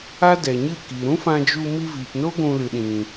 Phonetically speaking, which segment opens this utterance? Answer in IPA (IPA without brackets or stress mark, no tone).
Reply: a